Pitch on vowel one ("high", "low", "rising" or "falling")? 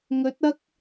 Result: rising